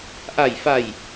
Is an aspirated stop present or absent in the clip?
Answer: absent